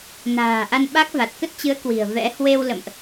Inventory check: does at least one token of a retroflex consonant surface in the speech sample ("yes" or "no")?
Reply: no